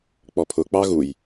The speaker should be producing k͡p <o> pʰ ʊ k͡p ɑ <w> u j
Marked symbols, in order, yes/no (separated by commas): no, no